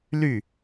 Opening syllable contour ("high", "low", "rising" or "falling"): falling